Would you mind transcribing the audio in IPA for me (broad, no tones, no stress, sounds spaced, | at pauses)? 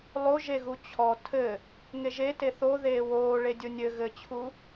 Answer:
lˠ o ʒ e ɣ u t͡ɕʰ ɔ tʰ ɘ | ŋ e ʒ e t e θ o ð eː w oː ɭ e dʲ o nʲ ɘ ɣ ɘ t͡ɕʰ u